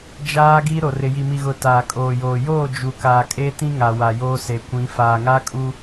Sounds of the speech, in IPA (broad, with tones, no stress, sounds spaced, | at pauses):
d͡ʒ aː˦ ɡ iː˦ ɾ o˨ r ɪ˨ j i˨ m i˨ ɣ ʊ˨ t aː˨ kʼ oː˨ j oː˨ j oː˦˨ d͡ʒ u˨ k aː˨ kʼ e˦ t ĩ˦ ŋ a˨ w a˨ j oː˦ s e˨ kʷ ĩ˨˦ f aː˨ ŋ a˦ kʼ u˦